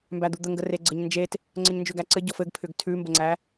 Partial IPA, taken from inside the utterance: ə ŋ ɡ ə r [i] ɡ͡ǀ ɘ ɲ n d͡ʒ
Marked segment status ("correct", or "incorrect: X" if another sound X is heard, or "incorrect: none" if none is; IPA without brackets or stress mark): incorrect: e